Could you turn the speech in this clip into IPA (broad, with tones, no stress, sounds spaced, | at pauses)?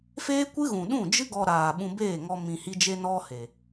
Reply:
f eː˦ kʷ ɨ˦ ɣ ũ˨ ɗ ũ˦˨ d͡ʒ ɨ˦ ɡ ɔ˧ ɾ aː˨ ɓ ũ˧ b eː˦˨ ŋ ɔ˧ m ĩ˨ h i˧ d͡ʒ e˧ n ɔ˧ h e˨